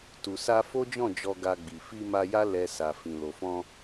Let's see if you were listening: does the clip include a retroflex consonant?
no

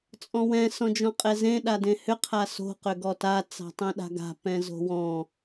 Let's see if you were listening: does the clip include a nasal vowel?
yes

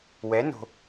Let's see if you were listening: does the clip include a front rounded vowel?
no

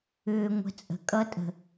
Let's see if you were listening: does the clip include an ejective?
yes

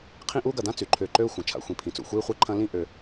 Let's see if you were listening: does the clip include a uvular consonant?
yes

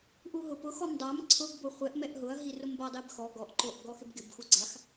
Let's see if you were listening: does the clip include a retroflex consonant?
no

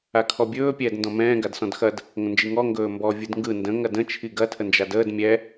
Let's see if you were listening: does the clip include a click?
no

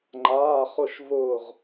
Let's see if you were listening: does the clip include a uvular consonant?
yes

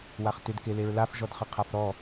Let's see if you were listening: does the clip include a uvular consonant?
yes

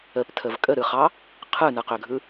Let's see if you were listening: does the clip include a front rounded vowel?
yes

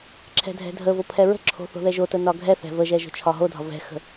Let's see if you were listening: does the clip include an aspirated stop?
yes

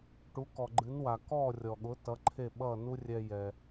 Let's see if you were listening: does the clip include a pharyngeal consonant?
no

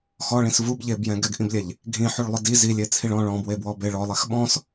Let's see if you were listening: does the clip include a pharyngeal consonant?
yes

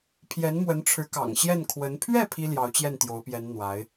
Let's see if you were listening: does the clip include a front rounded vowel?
no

